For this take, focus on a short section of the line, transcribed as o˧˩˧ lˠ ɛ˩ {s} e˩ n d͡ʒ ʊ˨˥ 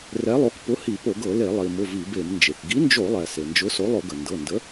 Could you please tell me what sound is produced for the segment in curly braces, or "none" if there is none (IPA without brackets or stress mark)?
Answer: s